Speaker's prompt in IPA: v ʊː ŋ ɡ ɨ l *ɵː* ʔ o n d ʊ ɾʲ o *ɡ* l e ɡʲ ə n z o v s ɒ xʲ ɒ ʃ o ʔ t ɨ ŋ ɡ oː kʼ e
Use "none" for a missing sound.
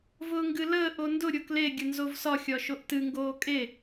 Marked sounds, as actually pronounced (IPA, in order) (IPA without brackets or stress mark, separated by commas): əː, k